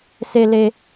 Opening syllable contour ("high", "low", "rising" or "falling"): high